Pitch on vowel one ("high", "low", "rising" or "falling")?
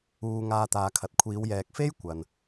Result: low